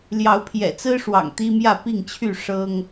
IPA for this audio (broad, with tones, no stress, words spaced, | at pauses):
ljɑ˨˦ʊ̯pʰjɛ̰˨˩t͡sɹ̩˦ʂwɑ̰˨˩ŋ t̪i˦mjä˥˨ pi˥˨ŋt͡ɕʰy˥˨ ʂɤ˦ŋ